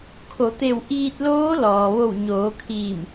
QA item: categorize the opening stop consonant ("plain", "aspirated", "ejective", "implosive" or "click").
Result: aspirated